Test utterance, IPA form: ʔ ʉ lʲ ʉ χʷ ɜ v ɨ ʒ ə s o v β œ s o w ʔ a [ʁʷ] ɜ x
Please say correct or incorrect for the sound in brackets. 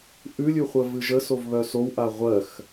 correct